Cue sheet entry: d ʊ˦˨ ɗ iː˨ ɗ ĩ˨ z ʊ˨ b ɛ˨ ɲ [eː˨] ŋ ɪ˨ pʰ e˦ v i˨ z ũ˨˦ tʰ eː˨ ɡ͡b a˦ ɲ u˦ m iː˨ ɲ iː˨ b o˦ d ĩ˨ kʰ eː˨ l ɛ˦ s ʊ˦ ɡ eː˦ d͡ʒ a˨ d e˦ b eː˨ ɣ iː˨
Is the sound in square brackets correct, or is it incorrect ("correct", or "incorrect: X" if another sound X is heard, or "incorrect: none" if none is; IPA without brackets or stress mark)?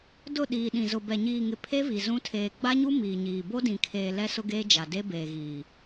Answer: incorrect: iː˨